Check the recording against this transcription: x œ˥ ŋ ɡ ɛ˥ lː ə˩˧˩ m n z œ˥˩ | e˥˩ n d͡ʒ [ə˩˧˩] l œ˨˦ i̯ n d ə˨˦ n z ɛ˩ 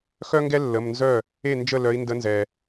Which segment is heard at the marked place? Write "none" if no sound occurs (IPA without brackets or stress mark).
ə˥˩